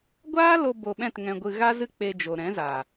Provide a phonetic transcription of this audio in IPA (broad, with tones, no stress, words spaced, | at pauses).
ɡʷaː˦lo˧ bo˧ɓɛ̃˦˨t ŋɛ̃˧ɡʷɨ˧ ɣa˦zɨ˦ k͡pe˧d͡ʒo˨ɾɛ̃˨˦zaː˨